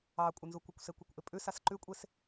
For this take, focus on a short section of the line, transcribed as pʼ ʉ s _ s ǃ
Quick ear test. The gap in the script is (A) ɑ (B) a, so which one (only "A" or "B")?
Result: B